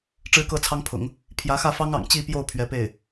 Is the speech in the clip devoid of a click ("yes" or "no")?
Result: yes